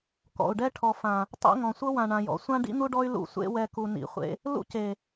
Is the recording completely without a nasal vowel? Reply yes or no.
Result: no